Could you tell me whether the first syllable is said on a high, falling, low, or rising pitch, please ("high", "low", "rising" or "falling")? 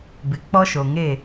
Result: low